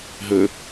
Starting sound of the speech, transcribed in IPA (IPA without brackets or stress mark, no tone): ɦ